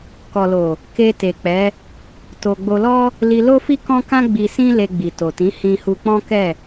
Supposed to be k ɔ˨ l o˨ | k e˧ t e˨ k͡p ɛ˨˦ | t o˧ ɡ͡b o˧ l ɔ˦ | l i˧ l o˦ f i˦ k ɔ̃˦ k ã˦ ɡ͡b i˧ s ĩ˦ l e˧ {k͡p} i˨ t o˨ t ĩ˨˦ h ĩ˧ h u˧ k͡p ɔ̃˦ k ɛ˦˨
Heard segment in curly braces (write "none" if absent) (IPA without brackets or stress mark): ɡ͡b